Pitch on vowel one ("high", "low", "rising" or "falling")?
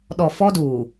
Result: low